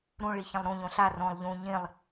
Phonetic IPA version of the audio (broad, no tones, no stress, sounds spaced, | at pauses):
ɾ ũ ɭ i ç ɛ̃ lˠ ɾ ũ ʎ õ ɬ a r õ lˠ ʎ ũ ɲ ĩ lˠ